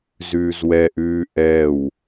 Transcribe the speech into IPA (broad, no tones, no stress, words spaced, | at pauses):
zʉːzwɛʔʉː ʔɛw